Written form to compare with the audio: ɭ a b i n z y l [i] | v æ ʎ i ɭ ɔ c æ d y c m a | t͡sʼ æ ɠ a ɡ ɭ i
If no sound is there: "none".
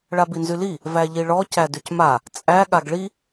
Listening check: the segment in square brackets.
i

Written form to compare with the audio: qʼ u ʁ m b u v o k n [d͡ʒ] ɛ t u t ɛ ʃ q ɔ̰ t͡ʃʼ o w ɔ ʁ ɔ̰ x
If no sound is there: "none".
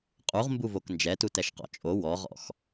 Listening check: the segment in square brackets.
d͡ʒ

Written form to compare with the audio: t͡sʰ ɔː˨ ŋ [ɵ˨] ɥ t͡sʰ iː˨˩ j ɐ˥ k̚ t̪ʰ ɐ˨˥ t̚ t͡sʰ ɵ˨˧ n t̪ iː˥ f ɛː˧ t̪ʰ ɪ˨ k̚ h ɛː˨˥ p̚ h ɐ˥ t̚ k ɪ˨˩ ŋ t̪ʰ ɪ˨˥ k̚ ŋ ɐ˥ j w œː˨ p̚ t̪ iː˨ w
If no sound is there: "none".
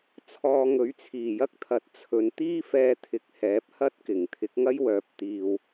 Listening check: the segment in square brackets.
ɵ˨˥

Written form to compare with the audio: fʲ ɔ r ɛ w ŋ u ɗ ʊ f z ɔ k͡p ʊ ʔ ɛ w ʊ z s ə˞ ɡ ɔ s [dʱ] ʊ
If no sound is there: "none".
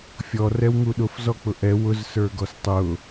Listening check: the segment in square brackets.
tˤ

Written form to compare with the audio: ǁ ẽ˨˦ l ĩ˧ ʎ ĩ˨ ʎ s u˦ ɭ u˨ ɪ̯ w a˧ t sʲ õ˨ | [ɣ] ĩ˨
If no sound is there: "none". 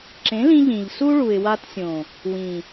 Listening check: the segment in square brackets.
w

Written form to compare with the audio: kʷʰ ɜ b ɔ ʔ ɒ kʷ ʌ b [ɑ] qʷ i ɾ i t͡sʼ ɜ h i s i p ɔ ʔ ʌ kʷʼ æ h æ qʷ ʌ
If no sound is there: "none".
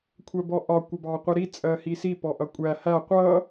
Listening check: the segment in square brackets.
ɑ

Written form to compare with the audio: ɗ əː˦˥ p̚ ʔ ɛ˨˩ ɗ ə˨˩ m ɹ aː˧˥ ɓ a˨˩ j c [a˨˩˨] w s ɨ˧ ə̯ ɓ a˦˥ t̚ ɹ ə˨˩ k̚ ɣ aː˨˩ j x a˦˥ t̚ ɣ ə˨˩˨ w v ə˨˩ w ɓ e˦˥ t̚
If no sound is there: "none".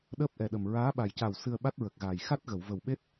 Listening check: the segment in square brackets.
a˨˩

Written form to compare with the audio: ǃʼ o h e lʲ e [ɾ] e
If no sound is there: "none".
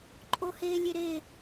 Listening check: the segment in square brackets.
ɾ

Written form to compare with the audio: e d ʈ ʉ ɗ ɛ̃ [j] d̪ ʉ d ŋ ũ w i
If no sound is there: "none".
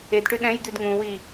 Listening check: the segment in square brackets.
j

